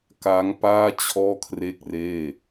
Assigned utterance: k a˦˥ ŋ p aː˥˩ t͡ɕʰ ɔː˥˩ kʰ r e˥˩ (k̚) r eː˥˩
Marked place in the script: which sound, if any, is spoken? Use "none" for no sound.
k̚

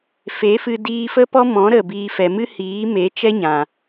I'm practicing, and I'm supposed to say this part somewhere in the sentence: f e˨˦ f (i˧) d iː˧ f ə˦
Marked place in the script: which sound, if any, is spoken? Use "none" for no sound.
ɨ˧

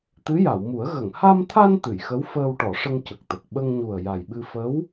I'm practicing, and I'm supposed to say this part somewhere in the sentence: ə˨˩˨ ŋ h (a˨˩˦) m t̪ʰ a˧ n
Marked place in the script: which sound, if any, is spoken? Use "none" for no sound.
a˧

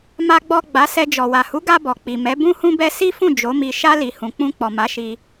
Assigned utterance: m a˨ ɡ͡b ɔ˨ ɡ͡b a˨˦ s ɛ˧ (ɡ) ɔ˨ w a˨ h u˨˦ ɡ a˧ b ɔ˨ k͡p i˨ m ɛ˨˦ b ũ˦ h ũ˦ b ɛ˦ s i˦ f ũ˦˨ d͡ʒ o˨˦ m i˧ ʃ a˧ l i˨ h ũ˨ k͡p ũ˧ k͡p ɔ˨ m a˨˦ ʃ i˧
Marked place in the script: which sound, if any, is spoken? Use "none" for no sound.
d͡ʒ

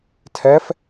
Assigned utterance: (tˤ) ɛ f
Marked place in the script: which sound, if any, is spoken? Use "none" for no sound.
tʰ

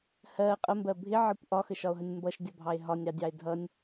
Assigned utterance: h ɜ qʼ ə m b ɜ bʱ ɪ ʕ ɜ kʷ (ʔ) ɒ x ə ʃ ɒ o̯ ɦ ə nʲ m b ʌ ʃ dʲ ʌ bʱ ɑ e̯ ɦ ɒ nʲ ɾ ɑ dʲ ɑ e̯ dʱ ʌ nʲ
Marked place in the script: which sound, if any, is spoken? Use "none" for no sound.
ʔ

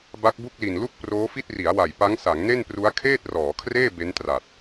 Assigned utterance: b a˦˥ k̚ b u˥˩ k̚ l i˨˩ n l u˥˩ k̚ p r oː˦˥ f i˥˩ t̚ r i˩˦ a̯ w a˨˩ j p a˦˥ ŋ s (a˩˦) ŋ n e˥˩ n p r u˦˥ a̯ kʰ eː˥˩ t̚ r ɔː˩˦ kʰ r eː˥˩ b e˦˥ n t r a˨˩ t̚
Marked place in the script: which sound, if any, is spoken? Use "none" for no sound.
a˩˦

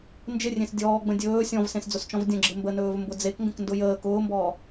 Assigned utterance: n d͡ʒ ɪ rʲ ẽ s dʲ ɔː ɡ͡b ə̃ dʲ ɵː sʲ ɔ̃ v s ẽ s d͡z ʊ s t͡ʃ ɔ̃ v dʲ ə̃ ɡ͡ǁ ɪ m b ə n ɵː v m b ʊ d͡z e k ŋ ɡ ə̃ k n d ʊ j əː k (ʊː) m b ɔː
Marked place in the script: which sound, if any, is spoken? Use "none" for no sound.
ʊː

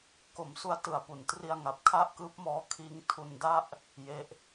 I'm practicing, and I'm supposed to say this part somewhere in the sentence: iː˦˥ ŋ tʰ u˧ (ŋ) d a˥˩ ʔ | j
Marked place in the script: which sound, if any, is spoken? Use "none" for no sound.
n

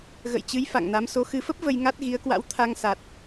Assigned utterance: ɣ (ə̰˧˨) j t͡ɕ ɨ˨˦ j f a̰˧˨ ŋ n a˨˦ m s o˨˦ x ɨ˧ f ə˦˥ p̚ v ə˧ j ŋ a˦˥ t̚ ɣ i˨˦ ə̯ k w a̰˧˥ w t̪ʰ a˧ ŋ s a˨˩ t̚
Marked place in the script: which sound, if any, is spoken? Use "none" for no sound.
ə̰˧˨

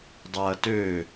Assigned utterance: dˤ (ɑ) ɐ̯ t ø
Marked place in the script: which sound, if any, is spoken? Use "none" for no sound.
a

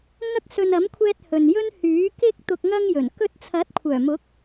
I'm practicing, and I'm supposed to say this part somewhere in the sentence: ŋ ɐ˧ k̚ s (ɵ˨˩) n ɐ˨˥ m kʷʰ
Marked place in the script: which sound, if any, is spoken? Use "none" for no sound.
ɵ˨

